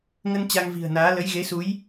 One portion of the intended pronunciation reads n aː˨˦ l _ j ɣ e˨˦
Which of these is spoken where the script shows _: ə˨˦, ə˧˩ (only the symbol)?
ə˨˦